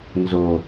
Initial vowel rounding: rounded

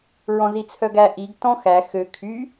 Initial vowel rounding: rounded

